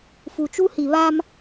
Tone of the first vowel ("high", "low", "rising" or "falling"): low